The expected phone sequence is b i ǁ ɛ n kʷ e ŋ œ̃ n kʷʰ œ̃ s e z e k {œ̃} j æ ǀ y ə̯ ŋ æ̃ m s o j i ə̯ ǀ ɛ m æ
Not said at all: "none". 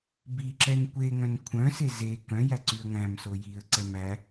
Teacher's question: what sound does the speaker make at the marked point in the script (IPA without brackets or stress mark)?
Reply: œ̃